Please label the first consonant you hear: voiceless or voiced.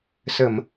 voiceless